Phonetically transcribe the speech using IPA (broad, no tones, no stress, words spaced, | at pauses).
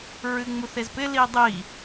ɹɨŋ͡muθezpɪ lidˤi